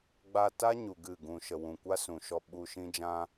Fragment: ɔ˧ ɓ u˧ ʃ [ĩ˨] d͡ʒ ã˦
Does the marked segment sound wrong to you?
yes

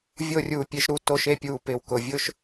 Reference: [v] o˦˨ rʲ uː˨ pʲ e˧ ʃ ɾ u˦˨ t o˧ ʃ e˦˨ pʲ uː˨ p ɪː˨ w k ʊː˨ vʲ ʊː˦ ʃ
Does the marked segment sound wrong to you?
yes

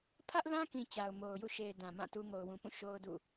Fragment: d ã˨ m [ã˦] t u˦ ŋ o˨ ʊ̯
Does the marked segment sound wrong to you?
yes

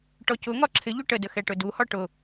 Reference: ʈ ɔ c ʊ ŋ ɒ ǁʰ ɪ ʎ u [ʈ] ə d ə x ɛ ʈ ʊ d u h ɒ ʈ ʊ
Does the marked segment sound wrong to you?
no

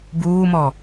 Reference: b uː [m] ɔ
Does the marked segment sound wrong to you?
no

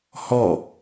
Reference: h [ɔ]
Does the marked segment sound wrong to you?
no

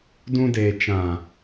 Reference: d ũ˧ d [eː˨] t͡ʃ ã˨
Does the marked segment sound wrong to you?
no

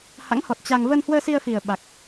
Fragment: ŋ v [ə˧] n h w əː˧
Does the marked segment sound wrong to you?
no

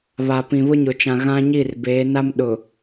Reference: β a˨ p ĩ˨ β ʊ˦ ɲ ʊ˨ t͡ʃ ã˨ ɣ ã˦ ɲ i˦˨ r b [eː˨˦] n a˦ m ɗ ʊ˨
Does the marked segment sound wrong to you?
no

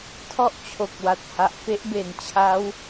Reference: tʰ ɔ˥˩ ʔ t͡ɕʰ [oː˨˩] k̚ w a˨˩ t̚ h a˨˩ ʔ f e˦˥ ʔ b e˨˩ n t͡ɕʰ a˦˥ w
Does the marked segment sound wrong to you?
yes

